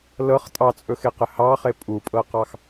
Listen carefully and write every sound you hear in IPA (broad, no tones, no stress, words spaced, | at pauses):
lɤχ tʼɑt͡sʼɵxeqɘ hɑχe pʼupʼɤqɑx